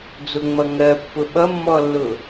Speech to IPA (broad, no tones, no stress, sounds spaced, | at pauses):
d͡z ʊ ŋ͡m ʌ ŋ ɜ pː ʊ ɓ ʌ mː ɔ lː ʊ